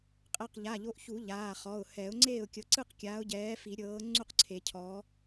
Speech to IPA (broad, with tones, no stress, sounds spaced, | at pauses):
qʼ ɛ˩˧˩ q ʎ a˩˧˩ ʎ o˨˦ ʔ ç u˨˩˦ ʎ aː˩˧˩ χ ɔ˩˧˩ ʊ̯ h ɛ˨˩˦ ʊ̯ ŋ͡ǀ eː˥˩ ʊ̯ kʲ ɤ˨˦ ǀ ɯ˥˩ q kʲ aː˨˦ ʊ̯ ɟ ɛː˨˦ f i˨˩˦ ɾʲ ɤː˨˦ ŋ͡ǀ u˥˩ q ǀʰ e˨˩˦ cʰ ɔ˨˦